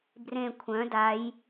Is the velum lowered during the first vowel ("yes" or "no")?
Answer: yes